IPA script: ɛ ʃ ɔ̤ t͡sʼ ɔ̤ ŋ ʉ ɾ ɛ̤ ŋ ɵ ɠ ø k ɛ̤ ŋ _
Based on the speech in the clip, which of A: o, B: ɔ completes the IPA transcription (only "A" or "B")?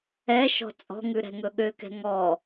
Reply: B